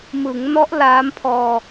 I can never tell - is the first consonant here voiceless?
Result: no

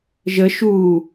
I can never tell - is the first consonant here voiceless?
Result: no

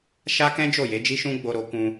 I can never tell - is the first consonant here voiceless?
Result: yes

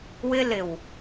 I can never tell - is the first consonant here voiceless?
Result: no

